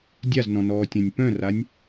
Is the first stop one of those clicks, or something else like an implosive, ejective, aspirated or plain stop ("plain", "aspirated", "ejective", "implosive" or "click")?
plain